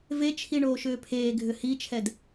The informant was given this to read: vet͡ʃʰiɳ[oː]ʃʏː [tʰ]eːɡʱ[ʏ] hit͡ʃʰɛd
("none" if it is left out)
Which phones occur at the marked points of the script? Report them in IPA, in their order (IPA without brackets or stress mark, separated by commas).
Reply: oː, pʰ, ʏ